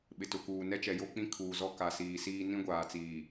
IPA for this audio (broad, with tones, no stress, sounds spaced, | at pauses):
ɓ ɪ˨ t ʊ˨ k uː˨ n ɛ˦ t͡ʃ ɛ˨ j o˦ k͡p ĩ˦ kʰ uː˨ z ɔ˦ k a˨ s iː˨ s iː˦ n ĩ˦ ɡʷ aː˨ t͡s iː˨